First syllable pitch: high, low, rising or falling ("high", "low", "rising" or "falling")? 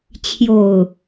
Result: low